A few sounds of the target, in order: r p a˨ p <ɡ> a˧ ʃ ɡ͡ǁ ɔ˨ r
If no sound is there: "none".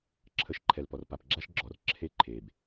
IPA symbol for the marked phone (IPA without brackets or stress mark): ɡ͡ǁ